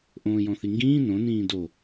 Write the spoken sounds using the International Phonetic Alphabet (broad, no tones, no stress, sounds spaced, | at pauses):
ʔ õː j ɔ̃ θ i ŋ ɡ ĩː n õ n ĩː d o